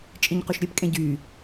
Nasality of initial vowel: nasal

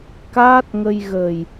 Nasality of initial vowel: oral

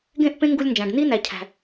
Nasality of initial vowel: nasal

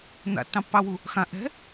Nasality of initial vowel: oral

